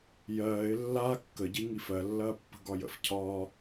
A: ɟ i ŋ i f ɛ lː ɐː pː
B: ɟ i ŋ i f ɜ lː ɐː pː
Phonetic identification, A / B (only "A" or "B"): B